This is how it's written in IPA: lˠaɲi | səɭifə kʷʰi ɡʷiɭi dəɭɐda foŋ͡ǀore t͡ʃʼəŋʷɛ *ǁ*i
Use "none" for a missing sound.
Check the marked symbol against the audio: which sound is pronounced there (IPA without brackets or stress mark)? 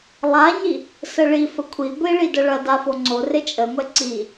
ǀ